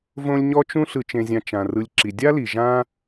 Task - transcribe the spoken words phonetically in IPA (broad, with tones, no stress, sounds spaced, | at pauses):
v õ˦ lʲ ɲ ɔ˥ t͡ʃ ũ˥ ɬ ɯ˨ t͡ʃ ẽ˨ zʲ ã˨ t͡ʃ ã˩ r ɯ˨ lʲ ǁ i˩ dʲ a˥ l i˩ ʒ ã˥